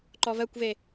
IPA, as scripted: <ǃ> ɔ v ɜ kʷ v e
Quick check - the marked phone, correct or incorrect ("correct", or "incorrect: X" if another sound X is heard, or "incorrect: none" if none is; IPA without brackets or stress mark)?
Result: correct